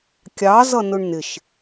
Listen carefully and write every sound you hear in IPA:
kʲ ɑ z ʌ n ʊ ɳ n ɪ ʃ

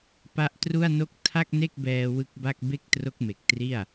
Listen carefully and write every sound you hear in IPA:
p a˦˥ ʔ t r u˥˩ a̯ n o˥˩ k̚ tʰ a˥˩ k̚ n e˥˩ k̚ b ɛː˧ w ɯ˦˥ k̚ b a˥˩ k̚ b e˥˩ k̚ t r o˦˥ k̚ m e˨˩ k̚ t r i˥˩ a̯

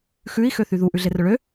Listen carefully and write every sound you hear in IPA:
x ʉ i̯ x ø θ y ð u ʔ ʉ ɮ e r œ ɭ ø

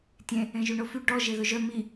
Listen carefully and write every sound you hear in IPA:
tʲ ẽ | ẽ ʒ y ɳ o f y ɖ ɔ ʒ e ð ɵ ʒ œ m i

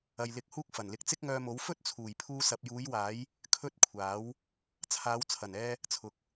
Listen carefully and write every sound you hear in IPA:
ɐ˨ j l ɪ˨˥ k̚ h uː˥ k̚ f ɐ˨˩ n l ɪ˧ k̚ t͡s ɪ˥ k̚ ŋ œː˧ m o˨˥ w f ɵ˥ t̚ t͡sʰ uː˨˩ j pʰ uː˧ s ɐ˨ p̚ j uː˨˧ j w aː˨˥ j | kʰ ɵ˥ t̚ kʷʰ aː˨˥ w | t͡sʰ aː˨˧ w t͡sʰ ɐ˨˩ n ɛː˧ | t͡sʰ ʊ˨˥ k̚

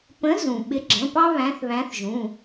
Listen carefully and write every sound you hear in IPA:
p ə̃˨˦ z ũ˩ ɓ ɪ˨˦ ɡ͡ǁ ə̃˩˧˩ p ɑ˦ β æ̃˨˦ θ β æ̃˨˦ θ ʒ ũ˩˧˩

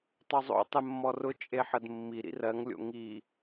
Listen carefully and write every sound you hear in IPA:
tˤ o zˤ o̰ tˤ e mː ɔ r ʊ t͡ʃʼ e ħ ə d mː i ɾ ḭ r ɜ ŋ lʲ o̰ ŋ i

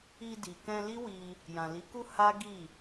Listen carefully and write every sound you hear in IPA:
i˧ d i˨ k ɛ̃˧ l i˦ w i˧ | j ã˨ l i˨˦ k u˦ h a˦ ɡ i˦˨

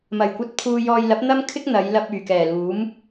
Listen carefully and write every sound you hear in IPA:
m ɐ˨˩ j kʷ ɐ˧ t̚ pʰ uː˧ j ɔː˧ j l ɐ˨˥ p̚ n̪ ɐ˥ m kʰ ɪ˥ k̚ n̪ ɐ˨˧ j l ɐ˧ p̚ yː˨˩ k ɛː˨˩ l uː˨˥ m

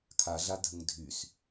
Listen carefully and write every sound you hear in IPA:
kʰ a ɮ a dʱ ə ŋ dʱ y s

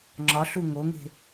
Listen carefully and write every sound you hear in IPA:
ŋ͡ǁ ɒ ɬ u ŋ o ŋ e̤

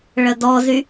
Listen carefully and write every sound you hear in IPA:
ɭ ə d ɔ z y

